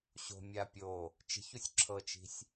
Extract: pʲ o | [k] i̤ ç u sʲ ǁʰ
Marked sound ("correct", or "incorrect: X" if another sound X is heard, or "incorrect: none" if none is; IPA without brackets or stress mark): incorrect: t͡ʃ